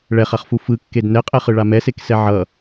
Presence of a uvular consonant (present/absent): present